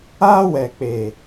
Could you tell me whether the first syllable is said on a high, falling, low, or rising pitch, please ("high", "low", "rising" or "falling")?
high